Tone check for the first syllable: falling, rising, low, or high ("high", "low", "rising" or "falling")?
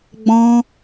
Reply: high